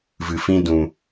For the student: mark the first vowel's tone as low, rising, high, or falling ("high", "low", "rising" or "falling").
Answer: low